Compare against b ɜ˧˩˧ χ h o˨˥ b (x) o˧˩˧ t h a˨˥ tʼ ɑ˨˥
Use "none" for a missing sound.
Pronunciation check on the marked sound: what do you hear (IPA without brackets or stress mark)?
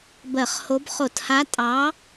χ